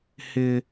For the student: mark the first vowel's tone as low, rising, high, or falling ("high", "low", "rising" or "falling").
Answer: low